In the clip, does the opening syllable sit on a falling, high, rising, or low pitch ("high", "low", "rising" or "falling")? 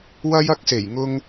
high